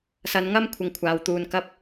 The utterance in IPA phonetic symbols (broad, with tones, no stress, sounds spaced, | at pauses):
s ɐ˨˧ n ŋ ɐ˥ m kʷʰ ɪ˧ ŋ kʷʰ aː˨ w t̪ uː˧ n k ɐ˥ p̚